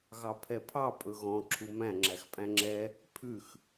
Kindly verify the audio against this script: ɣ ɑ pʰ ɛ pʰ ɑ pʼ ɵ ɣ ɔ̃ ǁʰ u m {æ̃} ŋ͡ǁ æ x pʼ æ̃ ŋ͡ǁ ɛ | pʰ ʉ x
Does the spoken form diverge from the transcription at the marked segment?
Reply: no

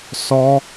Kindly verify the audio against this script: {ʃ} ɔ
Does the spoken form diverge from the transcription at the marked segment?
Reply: yes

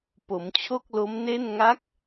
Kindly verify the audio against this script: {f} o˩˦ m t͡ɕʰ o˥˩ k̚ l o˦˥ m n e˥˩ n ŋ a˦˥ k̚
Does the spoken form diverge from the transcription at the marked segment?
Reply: yes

